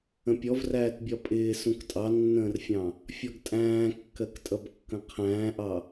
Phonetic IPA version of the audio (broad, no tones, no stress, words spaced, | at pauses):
ə̃pʲɔvræːtbʲɒ pʼɪː sũktʼɑnːə̃ːrfʲɑ̃ | fʲɔɡtʼæ̃ːkːɜk tʼʌbkːə̃qʰæ̃ːʔɑ